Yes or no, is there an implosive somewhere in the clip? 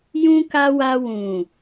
no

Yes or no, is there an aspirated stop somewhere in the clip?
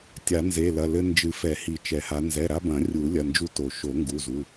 no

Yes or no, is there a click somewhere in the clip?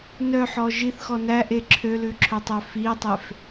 yes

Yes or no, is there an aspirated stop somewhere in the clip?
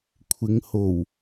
yes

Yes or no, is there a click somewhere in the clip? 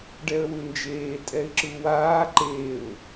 yes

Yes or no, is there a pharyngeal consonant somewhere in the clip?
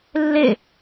no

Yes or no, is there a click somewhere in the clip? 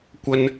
no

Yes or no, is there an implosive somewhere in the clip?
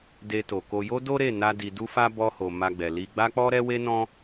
no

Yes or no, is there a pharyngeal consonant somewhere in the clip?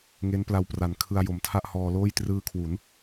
no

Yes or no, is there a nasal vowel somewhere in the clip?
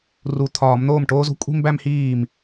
no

